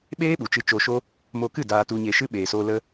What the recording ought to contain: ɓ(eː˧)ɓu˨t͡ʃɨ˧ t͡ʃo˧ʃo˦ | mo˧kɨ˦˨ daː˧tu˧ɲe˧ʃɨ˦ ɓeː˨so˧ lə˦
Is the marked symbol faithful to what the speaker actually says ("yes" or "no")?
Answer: no